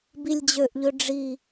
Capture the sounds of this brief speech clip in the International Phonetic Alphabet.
b i lʲ d͡ʑ ø ʔ ʎ ø ɖ͡ʐ i

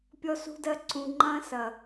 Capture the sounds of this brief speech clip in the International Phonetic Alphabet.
pʲ ɔ˧ s ṳ˧ d ɜ˧ ǀ ũ˨ ŋ͡ǃ ɐ̃˧ s ɐ˨

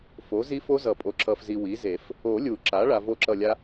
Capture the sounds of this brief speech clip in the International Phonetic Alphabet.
f o˩˥ z i˦˥ f o˦˥ z ʌ˨˩˦ pʼ o˩˥ ǁ ʌ˨ f z i˨ w i˩˥ z e˨˩˦ f | o˨˩˦ lʲ u˨˩˦ ǁ a˩˥ ɭ a˨ v o˦˨ ǁ ʌ˦˨ lʲ a˦˥

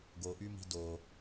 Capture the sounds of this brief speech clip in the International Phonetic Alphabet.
ɡ o ʔ y m i̤ d o

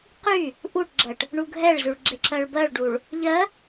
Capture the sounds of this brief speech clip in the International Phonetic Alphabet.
q y | ʔ u ʈ ɡ͡ǁ ɜ ʈ | ɳ u ɡʱ ɛ ɭ z y ɭ ɡ͡ǁ e ǁ ɜ ɭ b ɜ ɭ ɖ u ɭ | ʎ ɜ

